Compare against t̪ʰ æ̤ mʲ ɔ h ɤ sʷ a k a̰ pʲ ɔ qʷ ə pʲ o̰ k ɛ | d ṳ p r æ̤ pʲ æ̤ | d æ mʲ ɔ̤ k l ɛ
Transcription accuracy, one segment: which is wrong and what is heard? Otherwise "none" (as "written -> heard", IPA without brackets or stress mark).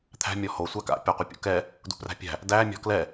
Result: ɤ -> o